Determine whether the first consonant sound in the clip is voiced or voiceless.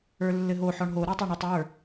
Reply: voiced